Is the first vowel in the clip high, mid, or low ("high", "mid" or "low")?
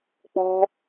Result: mid